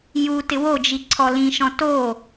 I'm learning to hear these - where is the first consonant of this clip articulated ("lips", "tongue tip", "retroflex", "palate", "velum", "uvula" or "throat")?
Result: palate